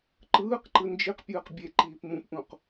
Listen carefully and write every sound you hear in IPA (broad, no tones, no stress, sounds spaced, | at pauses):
ǃ ɯː q ǃ ɯ n d͡ʒ i q pʲ ɯː q bʲ e ǃ iː p m ũ p ʔ ũ q